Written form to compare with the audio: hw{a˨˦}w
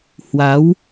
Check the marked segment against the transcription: correct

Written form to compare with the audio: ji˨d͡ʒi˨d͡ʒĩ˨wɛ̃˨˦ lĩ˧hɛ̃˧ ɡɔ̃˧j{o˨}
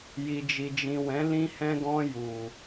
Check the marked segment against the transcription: incorrect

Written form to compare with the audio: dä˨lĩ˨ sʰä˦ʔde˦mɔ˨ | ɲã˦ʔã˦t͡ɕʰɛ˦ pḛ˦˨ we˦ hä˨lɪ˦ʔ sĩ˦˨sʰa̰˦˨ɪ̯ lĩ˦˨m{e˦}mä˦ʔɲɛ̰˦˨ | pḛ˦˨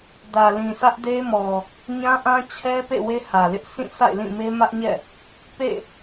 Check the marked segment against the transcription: correct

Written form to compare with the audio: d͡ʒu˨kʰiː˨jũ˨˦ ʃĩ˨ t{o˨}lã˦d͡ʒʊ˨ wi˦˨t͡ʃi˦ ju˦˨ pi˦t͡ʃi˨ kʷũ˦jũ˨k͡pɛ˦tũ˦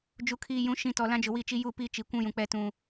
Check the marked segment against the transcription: incorrect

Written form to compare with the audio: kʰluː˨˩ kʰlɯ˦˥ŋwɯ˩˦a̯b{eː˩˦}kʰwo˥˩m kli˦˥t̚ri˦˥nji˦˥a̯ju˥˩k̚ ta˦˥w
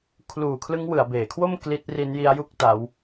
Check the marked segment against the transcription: correct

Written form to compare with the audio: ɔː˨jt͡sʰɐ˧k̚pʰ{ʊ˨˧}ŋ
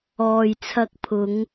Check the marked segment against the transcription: correct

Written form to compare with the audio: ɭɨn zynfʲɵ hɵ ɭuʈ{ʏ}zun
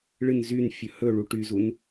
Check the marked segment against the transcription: incorrect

